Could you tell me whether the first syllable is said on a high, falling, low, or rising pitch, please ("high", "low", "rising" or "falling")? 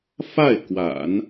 falling